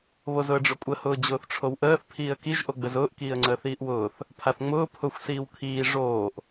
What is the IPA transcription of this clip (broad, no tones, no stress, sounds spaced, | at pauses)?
β o z ʊ ə̯ ɖ͡ʐ ʊ kʷʼ ə h ʊː d͡ʑ ʊː θ ʈ͡ʂʰ o w ʔ əː θ pʰ iː ə̯ k i ʒ ʔ o ɡ͡b ə z ʊː ʔ k iː ə̯ ŋ͡ǀ əː θ iː ʔ w ʊː θ | pʰ a θ ŋ͡m ʊː pʰ ʊ xʷ s iː w kʰ iː ʐ oː ʔ